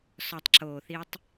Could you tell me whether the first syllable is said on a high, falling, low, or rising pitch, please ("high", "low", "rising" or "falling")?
low